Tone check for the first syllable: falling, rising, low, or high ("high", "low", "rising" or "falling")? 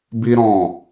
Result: high